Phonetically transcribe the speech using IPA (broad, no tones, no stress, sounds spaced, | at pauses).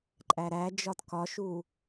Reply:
ǃʼ æ ɾ æ d͡ʒ ɒ t k ɒ ʃ u